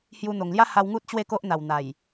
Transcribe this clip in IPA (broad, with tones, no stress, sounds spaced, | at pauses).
h j u˧ n̪ o˨˩ ŋ l j a˦ h a˧ w ŋ u˦ t̚ t͡ɕ w e˥˧ k o˦ ʔ n̪ a˨˩ w n̪ a˨˩ j